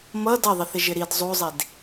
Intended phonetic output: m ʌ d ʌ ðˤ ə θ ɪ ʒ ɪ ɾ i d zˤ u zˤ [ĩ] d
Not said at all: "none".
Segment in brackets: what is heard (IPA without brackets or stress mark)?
i